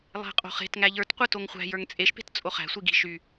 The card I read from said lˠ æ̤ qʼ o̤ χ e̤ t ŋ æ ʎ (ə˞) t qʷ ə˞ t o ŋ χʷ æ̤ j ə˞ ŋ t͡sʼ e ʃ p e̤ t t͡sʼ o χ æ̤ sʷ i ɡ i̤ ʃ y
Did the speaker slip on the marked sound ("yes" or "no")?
no